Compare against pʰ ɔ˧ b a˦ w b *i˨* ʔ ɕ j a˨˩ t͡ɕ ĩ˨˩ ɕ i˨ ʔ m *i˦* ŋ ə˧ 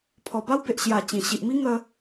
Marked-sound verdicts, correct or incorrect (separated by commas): incorrect, correct